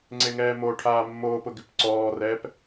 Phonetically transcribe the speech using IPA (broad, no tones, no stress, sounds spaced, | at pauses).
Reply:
ŋ͡ǀ e ŋ ɛː m o ʈʰ aː mː oː p ʊ ɡ ɪ p ǀ ɔː r ɛː p